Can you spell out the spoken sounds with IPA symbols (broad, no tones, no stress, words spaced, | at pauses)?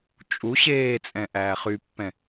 t͡ʃʼu ɕeː t͡sʼɛ̃ʔæːχypːɛ̃